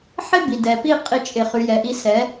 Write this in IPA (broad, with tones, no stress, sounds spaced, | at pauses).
ħ ɪ˦ b i˨ d ɛ˨ p i˦ qʼ i˦ t͡ʃʼ ɪ˧ χ y˧ j ɛ˨ ʔ i˧ s ɛ˨˦